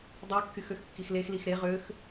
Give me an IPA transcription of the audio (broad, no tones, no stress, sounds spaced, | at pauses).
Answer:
dˤ y kː y x ø x kː i x l e x l i x ɾ e ʁ ø x